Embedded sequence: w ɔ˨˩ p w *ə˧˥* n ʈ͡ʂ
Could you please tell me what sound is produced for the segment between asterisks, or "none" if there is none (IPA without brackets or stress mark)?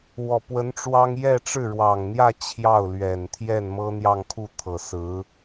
ə˧˥